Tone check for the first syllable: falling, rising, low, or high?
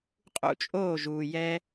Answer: falling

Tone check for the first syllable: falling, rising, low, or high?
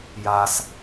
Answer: high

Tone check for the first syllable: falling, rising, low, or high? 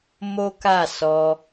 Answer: high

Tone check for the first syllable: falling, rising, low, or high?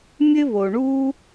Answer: high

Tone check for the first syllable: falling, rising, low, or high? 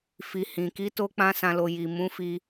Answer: low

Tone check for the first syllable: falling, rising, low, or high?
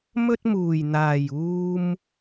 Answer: high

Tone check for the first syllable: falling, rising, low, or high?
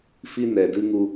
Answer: high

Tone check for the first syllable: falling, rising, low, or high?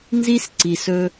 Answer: high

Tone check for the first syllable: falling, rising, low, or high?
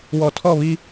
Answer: low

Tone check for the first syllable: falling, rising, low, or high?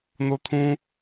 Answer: high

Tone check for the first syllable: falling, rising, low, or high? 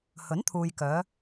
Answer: rising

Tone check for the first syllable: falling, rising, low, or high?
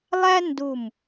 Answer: high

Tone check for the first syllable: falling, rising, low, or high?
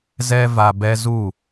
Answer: high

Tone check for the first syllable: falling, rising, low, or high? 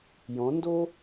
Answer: rising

